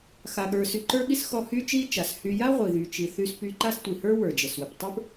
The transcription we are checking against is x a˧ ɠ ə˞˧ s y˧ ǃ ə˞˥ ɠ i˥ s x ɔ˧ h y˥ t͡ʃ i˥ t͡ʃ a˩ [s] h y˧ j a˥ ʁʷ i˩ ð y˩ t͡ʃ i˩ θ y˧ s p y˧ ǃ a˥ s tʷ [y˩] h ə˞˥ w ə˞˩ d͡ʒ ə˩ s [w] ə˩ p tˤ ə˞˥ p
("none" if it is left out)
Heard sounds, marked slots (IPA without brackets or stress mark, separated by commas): s, i˩, w